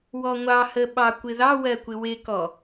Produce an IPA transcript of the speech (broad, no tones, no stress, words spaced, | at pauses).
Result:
wɔŋʷɑhə ɓɑkʷɪðɑwɜ kʷɪwɪkɔ